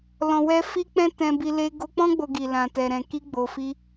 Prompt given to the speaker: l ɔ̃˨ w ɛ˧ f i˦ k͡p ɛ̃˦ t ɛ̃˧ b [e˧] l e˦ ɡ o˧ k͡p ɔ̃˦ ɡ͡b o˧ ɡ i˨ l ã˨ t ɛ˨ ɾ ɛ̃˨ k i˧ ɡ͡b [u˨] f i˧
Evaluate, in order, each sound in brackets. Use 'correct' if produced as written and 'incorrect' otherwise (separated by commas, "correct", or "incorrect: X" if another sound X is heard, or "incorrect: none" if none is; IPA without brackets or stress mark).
incorrect: i˧, incorrect: o˨